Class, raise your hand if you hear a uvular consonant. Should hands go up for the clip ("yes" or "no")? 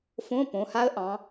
no